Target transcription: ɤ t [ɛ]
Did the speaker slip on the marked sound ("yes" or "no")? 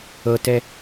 no